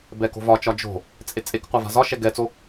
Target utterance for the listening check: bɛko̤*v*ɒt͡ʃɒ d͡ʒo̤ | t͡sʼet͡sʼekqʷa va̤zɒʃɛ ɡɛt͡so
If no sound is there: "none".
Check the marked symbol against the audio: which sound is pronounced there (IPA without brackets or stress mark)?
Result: v